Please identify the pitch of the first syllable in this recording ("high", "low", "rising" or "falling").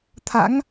rising